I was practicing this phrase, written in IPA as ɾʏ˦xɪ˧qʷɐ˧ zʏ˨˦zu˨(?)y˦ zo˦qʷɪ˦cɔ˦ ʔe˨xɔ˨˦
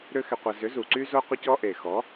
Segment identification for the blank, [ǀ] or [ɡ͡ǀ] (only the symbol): ǀ